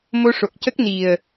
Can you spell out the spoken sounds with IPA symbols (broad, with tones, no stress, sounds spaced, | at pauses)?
m o˧ ʂ o˨˩ k̚ c ə˦˥ k̚ n i˨˩ ə̯